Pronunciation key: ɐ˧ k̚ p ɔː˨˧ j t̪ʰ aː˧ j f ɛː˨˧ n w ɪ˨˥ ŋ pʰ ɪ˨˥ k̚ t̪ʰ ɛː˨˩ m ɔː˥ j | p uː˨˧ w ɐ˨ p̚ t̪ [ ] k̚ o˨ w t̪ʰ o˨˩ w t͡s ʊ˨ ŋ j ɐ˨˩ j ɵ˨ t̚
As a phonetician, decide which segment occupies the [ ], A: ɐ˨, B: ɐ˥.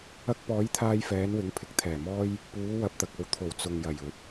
A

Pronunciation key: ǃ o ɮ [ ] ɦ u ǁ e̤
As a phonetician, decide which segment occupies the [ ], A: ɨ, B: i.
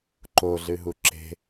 A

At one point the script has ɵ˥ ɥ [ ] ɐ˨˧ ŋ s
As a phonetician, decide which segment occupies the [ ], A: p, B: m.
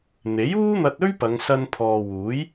A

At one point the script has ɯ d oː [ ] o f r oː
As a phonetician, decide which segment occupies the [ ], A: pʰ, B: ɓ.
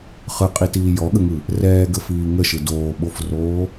B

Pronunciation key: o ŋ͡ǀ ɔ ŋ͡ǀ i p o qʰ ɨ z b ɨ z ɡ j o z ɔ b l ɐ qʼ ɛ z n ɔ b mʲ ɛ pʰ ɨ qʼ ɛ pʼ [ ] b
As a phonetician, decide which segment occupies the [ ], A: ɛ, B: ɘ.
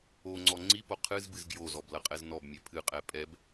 A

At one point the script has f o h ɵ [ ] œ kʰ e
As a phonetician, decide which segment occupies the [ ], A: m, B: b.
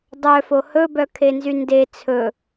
B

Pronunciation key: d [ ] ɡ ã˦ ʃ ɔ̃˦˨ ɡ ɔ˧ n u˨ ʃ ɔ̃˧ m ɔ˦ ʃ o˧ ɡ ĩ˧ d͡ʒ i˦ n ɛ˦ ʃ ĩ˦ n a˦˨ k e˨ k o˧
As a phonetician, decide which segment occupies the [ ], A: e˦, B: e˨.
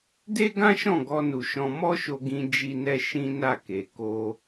A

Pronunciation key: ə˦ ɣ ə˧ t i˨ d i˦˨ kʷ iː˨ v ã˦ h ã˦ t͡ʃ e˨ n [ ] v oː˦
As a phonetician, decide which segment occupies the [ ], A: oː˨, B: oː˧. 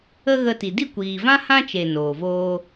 A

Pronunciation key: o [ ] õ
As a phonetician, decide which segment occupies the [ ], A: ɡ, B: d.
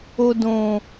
B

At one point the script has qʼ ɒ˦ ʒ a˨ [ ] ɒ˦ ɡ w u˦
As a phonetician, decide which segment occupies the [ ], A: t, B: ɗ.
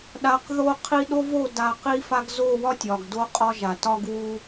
A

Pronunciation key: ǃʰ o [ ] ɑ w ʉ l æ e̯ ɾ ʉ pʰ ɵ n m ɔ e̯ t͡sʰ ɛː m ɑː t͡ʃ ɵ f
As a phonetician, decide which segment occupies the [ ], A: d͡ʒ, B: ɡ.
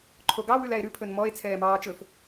B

